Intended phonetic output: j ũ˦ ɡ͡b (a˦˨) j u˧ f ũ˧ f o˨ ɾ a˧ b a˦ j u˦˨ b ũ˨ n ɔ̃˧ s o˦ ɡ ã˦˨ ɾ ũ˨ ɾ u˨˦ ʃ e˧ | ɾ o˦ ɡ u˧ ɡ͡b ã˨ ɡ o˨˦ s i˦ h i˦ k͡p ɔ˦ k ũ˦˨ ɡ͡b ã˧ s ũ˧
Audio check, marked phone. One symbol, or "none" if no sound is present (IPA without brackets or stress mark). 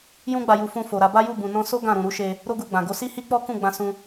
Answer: a˧